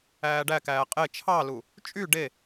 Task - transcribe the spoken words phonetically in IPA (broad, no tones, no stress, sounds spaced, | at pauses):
æː ɖ æ k æː qʼ e t͡ʃʰ ɑ l u | t͡ʃʼ y ɖ e